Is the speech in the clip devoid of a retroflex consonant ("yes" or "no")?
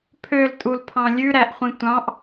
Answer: yes